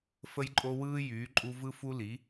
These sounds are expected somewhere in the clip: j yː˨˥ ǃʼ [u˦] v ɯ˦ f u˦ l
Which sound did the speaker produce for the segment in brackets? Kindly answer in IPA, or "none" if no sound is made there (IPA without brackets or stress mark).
u˦